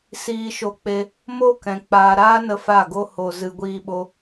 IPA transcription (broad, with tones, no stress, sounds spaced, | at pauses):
s iː˧ ʃ o˧ k͡p e˧ | m o˦ k ɛ̃˨ k͡p aː˨ ɾ aː˦ n ə˦ f a˦˨ ɡ o˦ h o˨ z ɨ˧ ɡʷ iː˦ ɓ o˦